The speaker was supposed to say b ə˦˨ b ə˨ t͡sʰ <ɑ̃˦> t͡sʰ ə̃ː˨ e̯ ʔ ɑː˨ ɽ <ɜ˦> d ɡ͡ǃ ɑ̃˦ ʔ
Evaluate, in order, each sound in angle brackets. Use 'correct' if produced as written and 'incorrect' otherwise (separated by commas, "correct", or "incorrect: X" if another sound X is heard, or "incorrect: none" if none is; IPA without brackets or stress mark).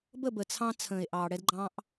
incorrect: ɑ̃˧, incorrect: ɛ˦